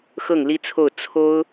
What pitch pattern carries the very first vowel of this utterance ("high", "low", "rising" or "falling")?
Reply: falling